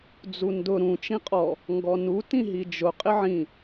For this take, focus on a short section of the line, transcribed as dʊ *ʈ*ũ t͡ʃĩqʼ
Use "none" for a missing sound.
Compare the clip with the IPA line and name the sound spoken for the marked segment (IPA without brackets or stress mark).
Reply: ɾ